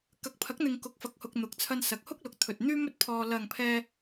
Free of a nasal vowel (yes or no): yes